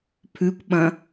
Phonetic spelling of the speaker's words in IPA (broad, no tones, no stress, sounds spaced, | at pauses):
pʰ ʉ kʷ ɓ ɐ̃